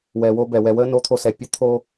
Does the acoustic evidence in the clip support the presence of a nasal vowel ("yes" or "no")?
no